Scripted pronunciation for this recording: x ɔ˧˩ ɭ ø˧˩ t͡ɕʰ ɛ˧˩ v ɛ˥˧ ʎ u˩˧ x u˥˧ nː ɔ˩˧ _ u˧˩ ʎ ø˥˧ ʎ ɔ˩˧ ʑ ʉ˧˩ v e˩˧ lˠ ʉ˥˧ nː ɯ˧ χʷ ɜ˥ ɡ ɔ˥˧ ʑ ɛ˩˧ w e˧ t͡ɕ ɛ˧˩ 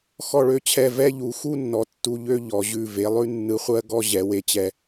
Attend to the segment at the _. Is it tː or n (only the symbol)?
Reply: tː